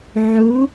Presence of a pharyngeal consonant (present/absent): present